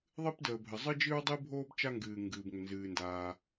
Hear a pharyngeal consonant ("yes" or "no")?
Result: no